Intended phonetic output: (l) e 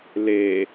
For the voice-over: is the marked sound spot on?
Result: yes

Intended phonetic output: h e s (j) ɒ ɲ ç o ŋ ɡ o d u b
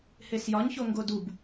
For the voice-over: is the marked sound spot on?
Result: yes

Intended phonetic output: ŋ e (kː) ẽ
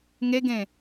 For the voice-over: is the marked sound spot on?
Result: no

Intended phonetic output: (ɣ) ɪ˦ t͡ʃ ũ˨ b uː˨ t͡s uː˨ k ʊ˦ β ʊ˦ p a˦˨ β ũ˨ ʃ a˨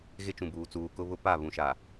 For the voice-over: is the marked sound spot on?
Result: yes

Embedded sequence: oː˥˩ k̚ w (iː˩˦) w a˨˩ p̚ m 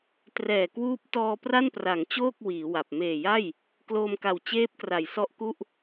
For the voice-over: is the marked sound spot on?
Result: yes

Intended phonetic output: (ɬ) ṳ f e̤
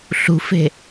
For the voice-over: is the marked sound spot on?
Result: yes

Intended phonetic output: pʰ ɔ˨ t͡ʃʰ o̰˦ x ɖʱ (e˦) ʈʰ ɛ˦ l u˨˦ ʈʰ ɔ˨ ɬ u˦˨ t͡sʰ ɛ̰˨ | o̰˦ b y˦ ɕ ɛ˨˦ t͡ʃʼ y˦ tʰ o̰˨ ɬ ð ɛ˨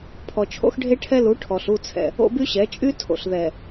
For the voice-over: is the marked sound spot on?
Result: yes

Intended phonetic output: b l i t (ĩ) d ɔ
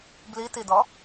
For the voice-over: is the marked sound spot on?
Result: no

